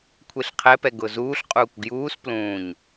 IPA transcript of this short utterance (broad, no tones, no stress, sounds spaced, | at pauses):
kʷʰ e ɬ qʰ ɛ p ɛ ɡ ʊ z uː ɬ qʼ uː kʷ ɡ j uː s p l ũː ɲ